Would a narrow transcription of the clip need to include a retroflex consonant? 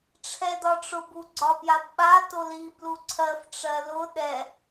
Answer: yes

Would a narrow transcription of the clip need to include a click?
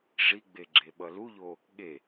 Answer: yes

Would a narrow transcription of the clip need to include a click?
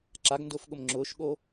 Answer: yes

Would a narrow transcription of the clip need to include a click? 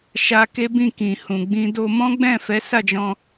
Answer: no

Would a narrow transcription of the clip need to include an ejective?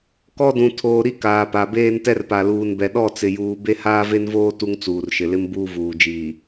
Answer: no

